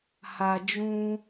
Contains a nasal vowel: yes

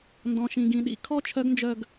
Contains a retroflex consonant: no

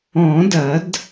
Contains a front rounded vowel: no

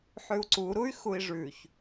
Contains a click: yes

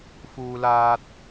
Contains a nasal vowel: no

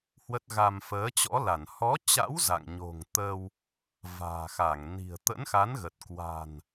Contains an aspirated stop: no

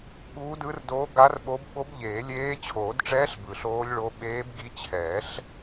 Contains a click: no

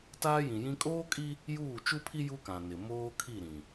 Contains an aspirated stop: yes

